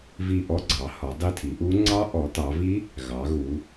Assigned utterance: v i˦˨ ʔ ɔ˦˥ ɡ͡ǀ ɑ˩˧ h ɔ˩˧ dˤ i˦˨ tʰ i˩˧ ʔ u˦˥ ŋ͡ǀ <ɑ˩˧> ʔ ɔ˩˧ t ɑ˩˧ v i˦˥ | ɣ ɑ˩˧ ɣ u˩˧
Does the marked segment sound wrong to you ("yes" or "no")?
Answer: yes